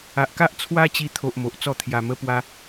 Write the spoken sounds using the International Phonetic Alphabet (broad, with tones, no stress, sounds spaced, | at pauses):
a˨ ʔ k a˦ ʔ t͡sʰ w a˦ t͡ɕ i˧ t̪ʰ o˨ ʔ m o˨ ʔ t͡s ɔ˥˧ t̪ʰ j a˨˩ m ə˧ p w a˧